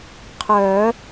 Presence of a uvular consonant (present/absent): present